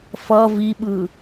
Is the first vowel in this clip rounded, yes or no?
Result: no